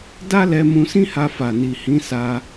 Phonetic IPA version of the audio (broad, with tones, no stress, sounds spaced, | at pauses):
d a˦ l ɛ˧ m ũ˧ s ĩ˦ h a˧ f a˨ n i˨ h ĩ˨˦ s a˧